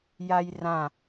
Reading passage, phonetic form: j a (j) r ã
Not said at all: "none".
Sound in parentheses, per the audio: j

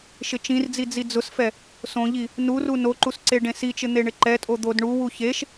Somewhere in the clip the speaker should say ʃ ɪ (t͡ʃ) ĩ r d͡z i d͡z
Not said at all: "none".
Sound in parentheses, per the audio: t͡ʃ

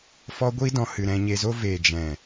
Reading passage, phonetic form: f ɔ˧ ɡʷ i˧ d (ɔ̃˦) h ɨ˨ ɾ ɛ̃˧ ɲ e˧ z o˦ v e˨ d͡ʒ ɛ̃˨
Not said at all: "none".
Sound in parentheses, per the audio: ɔ̃˨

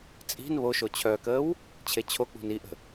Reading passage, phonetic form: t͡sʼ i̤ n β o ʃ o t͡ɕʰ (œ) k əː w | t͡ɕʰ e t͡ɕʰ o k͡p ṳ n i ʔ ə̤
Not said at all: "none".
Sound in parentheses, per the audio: œ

